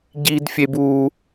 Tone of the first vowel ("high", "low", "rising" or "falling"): high